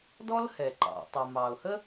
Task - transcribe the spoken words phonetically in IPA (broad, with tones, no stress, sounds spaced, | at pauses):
d ɔ˥ l h ɛ˩ ǃ ɑ̰˩ tˤ ə˩ m ɑ˩ ʊ̯ h ə˥